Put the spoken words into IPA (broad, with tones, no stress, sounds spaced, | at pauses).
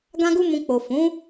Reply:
ɡ ã˦ ɡ u˦ m ũ˧ k͡p o˨ f ũ˨˦